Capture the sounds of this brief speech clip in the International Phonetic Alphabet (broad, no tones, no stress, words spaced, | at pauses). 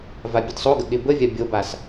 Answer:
vabʲədsˤoɡə ɠɪbəvʲa bʲobas